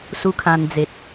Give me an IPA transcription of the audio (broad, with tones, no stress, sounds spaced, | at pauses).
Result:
s u˦ kʰ ã˧ n d͡z e˨ t̚